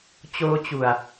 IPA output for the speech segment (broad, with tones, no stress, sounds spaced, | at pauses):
t͡ɕ oː˦˥ t͡ɕ u˨˩ a̯